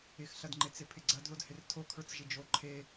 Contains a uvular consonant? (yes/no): no